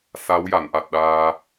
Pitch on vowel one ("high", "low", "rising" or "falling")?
rising